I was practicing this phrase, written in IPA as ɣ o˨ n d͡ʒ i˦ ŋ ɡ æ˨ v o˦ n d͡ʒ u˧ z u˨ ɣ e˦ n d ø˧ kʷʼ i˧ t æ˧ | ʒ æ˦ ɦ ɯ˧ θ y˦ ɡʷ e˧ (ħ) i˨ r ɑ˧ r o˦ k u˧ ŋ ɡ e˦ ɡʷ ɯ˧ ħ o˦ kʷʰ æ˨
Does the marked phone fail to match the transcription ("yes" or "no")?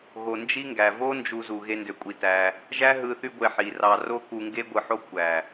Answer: no